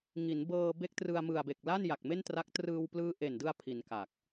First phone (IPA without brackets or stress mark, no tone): ŋ